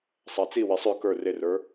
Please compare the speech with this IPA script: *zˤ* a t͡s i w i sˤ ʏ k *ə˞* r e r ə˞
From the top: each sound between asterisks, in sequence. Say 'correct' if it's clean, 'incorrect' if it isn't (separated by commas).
incorrect, correct